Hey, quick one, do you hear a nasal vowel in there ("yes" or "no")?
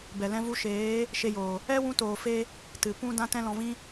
yes